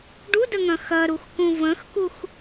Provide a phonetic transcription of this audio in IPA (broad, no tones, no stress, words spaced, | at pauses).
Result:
ɖudəŋɐ̃ xɐɾuxkũ və̃xkux